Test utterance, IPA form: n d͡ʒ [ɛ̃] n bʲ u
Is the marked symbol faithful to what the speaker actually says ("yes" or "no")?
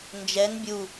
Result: no